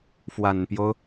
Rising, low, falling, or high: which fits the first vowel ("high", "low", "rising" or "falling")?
low